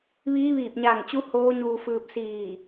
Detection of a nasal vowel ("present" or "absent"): absent